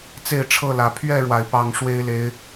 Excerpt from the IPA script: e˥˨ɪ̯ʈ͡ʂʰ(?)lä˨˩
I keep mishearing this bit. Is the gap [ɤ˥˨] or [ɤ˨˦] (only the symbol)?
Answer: ɤ˥˨